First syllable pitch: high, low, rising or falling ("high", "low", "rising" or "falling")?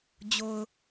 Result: low